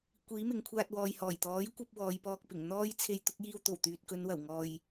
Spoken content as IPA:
kʷ iː˨˥ m ɪ˨ ŋ kʷʰ aː˧ t̚ w ɔː˨ j h ɔː˨˩ j t̪ ɔː˨˥ j kʷ ɐ˧ p̚ w ɔː˨˧ j p ɔː˧ k̚ p ɪ˨˩ ŋ n̪ ɔː˥ j t͡sʰ e˧ j t̪ ʊ˨˥ k̚ j iː˧ w t̪ o˨˩ w t̪ yː˨ t̚ k ɵ˨˧ n w ɐ˨˩ w ŋ ɔː˨ j

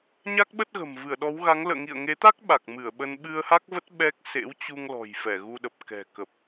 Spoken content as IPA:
ɲ a˦˥ k̚ ɓ ə˦˥ t̚ ɣ ə̤˨˩ m v ɨ˧˩ ə̯ ɗ ɔ˨˦ w ɣ a˨˦ ŋ l ə̰ː˧˨ ŋ ḭ˧˨ ə̯ ŋ e˨˦ t̪ a˦˥ k̚ ɓ a˨˩ k̚ m ɨ˧˩ ə̯ ɓ ə˧ n ɓ ɨ˧ ə̯ h a˦˥ k̚ v ə˦˥ t̚ ɓ ɛ˦˥ k̚ s ḛ˧˥ w t͡ɕ u˧ ŋ l ɔ̤˨˩ j f ɛ˧˩ ɣ u˧ ɗ ə˨˩ p̚ k ɛ̤˨˩ k ə˨˩ p̚

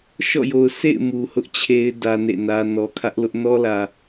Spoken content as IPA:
ʃ ɔ̰˦˨ j o˨ ʊ̯ s ḛ˦˨ ɪ̯ m u˨ h ʊ˦ ʔ t͡ɕʰ e˦ ɪ̯ d ä˦ n ḛ˦˨ n ä˦ n ɔ˨ kʰ ä˦ ʔ l ʊ˦ ʔ n ɔ˦ l ä˨

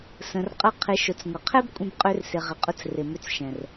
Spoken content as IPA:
s ə̃˨ r qʼ ə˧ qʰ ɪ˨˦ ʃ ʊ˨ t͡s ŋʷ ə˨ qʰ ɛ˦ b kʷʼ ə̃˧ b qʼ ø˧ r s ɪ˨ ʁ ɪ˨ qʼ ʊ˧ t͡s r ɪ˨ m ʏ˧ t͡s ʃ ɛ̃˨ r

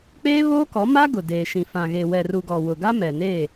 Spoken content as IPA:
k͡p eː˦ β oː˦ k ɔ˨˦ m a˦ ɡ ʊ˨ d eː˨ ʃ ĩ˨ f ã˨ ɣ e˨ w ɛ˨ r u˨ ɡ ɔ˨ w ʊ˨ ɡ a˦ m ɛ˨ n eː˦˨

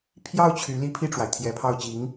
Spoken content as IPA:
pʰ j ɑ˥˩ ʊ̯ t͡ɕʰ y˧˥ l i˥ pʰ i˥˩ ʈ͡ʂ w a˩ ɪ̯ t̪ʰ j ɛ˧˥ pʰ ɑ˥˩ ʊ̯ t͡ɕ i˧˥ ŋ

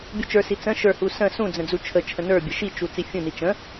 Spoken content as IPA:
bʲ u t͡ʃ ə˞ s i t͡s ə̃ ʃ ə˞ h u s ə̃ s ũ d͡z ə̃ d͡z u t͡ʃʰ ə t͡ʃʰ ə̃ n ə˞ bʲ ə ʃ i t͡ʃ u t͡s i fʲ ũ n i t͡ʃ ə̃

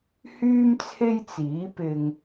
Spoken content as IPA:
h yː˥ m t͡sʰ e˥ j t͡s iː˨˥ p ɪ˧ ŋ

